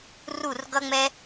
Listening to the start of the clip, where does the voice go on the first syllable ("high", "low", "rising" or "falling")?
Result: falling